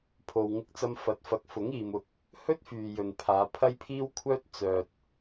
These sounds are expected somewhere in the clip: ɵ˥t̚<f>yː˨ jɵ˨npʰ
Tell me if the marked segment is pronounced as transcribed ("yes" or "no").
yes